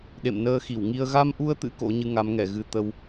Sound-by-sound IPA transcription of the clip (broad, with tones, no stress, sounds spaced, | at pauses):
ɗ ḛ˧˨ m n əː˧ x i˧˩ w ŋ i˧ ə̯ ɣ a˧ m ʔ u˧ ə̯ t̪ ɨ̰˧˥ k o̰˧˥ ɲ ɨ˧ ŋ a˨˦ m ŋ ɛ˧˩ ɣ ɨ˧ t̪ ə˧ w